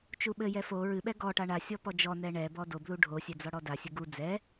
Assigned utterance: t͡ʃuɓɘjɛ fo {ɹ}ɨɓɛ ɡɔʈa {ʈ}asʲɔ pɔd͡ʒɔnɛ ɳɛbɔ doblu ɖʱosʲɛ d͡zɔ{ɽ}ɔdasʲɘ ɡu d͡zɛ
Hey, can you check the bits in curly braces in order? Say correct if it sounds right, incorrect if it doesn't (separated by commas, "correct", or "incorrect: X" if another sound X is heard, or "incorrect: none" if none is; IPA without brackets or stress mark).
correct, incorrect: ɳ, correct